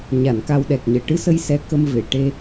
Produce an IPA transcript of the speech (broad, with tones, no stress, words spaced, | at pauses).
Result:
ɲa˨˩˨n ka˧wɗɛ˨˩k̚ɲəː˨˩ ʈɨ˧sə˧j sɛ˧˥kə˧m ve˨˩˨ ʈe˧